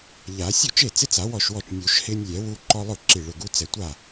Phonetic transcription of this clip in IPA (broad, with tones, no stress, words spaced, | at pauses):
ʎa˨˩˦ sʲo˥˩t͡ʃe˥˩t͡sɪ˦t͡sa˨˩˦ wɔ˥˩ʃwɔ˥˩t͡ʃ nʲu˨˩˦ʃhɪː˦nʲlʲɛ˨˩˦ wu˦ǃɔ˦lˠʊ˥˩ ǁi˧˩ɭʊ˧˩ɡu˦t͡sɛ˧˩ tʷa˥˩